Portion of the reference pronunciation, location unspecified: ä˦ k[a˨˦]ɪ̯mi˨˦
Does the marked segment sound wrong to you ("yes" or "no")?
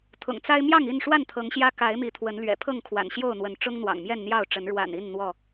no